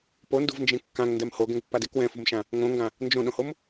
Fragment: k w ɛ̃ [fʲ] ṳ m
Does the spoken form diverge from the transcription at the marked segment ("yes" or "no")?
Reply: yes